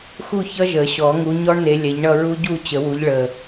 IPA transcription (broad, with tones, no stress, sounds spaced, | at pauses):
x u˥˧ ç ʌ˦˥ ʒ ə˨˩˦ ɕ ɔ˨˩˦ ŋ u˨˦ ɲ ɔ˦˥ ɳ n e˨˦ lʲ ɛ˨˦ ʎ ɳ ʌ˥˧ ɹ u˦˥ ɟ u˥˧ t͡ɕ ə˨˩˦ w u˨˦ ʎ ɭ ə˨˩